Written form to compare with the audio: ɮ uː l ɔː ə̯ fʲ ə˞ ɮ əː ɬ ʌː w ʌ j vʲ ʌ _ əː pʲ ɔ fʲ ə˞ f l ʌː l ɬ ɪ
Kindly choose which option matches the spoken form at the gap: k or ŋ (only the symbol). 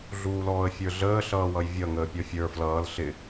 ŋ